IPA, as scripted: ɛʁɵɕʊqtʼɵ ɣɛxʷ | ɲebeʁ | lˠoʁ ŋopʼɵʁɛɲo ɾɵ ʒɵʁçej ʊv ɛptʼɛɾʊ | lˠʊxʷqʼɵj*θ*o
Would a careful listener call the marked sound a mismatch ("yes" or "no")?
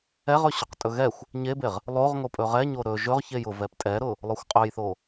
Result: no